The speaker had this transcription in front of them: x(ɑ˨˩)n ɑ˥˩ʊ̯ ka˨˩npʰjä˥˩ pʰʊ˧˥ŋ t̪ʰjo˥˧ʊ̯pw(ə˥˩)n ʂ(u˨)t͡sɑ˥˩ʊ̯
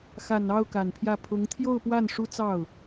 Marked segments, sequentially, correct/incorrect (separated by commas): incorrect, incorrect, incorrect